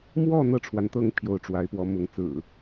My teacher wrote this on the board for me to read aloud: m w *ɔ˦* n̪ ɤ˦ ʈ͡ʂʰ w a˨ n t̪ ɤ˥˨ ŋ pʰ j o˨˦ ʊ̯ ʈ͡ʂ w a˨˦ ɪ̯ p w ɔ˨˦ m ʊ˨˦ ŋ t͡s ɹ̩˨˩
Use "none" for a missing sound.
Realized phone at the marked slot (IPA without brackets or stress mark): ɔ˥˨